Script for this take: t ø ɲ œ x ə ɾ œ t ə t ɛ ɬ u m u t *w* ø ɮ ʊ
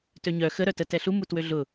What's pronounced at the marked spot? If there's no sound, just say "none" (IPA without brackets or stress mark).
w